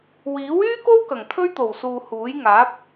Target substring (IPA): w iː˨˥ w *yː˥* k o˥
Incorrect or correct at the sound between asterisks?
correct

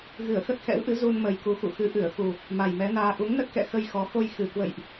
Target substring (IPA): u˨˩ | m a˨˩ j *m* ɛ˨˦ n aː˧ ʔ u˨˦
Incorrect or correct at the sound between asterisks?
correct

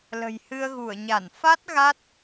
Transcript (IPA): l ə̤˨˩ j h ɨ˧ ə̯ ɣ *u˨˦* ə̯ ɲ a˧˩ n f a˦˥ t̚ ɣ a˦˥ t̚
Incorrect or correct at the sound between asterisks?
incorrect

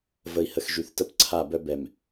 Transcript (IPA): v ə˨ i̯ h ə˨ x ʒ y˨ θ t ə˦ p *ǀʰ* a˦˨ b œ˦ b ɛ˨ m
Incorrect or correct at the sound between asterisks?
correct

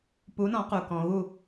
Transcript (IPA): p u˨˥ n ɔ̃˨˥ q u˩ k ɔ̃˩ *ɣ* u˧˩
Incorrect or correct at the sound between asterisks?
correct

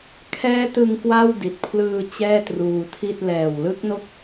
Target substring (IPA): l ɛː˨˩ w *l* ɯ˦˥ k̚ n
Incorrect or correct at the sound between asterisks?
correct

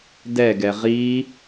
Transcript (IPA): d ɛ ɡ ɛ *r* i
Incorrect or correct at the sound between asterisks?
incorrect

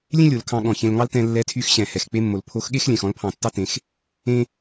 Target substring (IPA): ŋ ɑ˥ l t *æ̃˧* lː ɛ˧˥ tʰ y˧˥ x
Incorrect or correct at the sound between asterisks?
incorrect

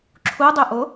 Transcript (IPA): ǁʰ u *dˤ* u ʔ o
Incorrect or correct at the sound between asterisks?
correct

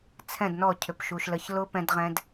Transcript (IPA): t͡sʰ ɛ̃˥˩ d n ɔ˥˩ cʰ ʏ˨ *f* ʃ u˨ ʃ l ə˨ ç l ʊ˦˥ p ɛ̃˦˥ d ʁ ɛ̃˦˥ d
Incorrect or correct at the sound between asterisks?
incorrect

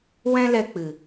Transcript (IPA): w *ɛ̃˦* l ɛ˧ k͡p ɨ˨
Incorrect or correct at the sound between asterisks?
correct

